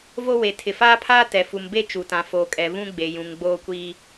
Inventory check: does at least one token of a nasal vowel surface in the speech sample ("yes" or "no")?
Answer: yes